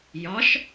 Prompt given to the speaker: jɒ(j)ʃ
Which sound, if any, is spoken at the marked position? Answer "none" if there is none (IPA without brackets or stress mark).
none